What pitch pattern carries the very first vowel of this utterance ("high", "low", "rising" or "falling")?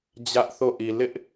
high